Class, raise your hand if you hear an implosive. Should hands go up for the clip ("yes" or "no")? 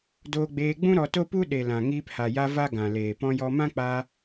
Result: yes